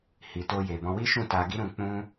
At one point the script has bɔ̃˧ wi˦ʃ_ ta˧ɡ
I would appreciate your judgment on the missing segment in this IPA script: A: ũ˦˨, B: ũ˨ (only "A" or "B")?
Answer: A